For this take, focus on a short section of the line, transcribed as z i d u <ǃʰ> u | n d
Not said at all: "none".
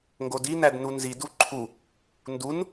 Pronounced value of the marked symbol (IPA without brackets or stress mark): ǃʰ